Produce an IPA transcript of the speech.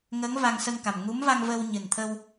ŋ ə˧˥ ŋ v a˧ ŋ s ə˧ ŋ k a˨˩ m ŋ u˧˥ m v a˧ ŋ v ə˧ w ɲ ɨ˨˩ n t̪ʰ ə˧ w

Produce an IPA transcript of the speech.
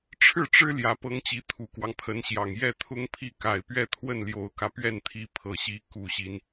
ʈ͡ʂʰ ɻ̩˥˩ ʈ͡ʂ ɻ̩˥ l j ä˧˥ p ɤ˥ ŋ t͡ɕ i˧˥ t̪ʰ u˨˩ k w ɑ˦ ŋ pʰ ə˧˥ n ɕ j ɑ˨˩ ŋ j ɛ˥˩ t̪ʰ ʊ˥ ŋ pʰ i˥˩ k a˨˩ ɪ̯ p ɥ ɛ˥˧ t̪ʰ w ə˥˩ n l j o˨˩ ʊ̯ k ä˦ p ɥ ɛ˥˩ n t̪ʰ i˧˥ pʰ ɤ˨˩ ɕ i˧˥ k u˨˩ ɕ i˦ n

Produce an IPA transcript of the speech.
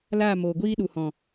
l aː˦˨ m oː˨ ɡʷ iː˦ ɗ u˨ h ɔ̃˨

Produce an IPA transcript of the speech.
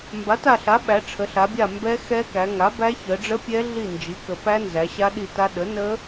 m b a˩˥ t a˦˨ ɬ a˩˥ ɓ æ˩˧ ʈ͡ʂʰ ə˩˧ ɬ a˩˧ bʲ a˦˨ m b ɛ˦˥ x ɛ˦˥ k æ˩˧ ŋ a˩˥ b æ˦˥ ç ə˩˧ ɖ͡ʐ ə˦˥ pʲ ɛ˦˥ ɮ i˦˨ n d͡ʒ i˩˥ k ə˩˧ p æ˦˥ n z æ˩˧ ɕ a˦˥ ɗ i˦˨ t a˦˥ ɗ ə˩˥ n ə˦˥

